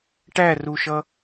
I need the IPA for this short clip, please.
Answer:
ʈ æ r u ʃ ʌ

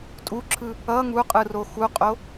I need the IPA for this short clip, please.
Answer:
tʼ u ǁʰ ɯ | ʌ ŋ u qʼ ɯ r o x u qʼ o

